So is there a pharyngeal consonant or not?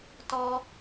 no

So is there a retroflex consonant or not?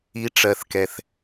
yes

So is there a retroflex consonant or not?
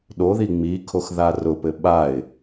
no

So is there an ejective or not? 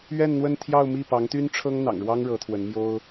no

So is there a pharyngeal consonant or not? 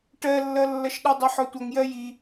yes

